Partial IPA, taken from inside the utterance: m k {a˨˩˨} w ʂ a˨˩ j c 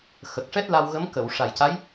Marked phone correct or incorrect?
incorrect